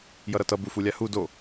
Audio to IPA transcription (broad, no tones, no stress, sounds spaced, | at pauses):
j ʌ ɾ ʌ t ʌ b u f u lʲ a h u d o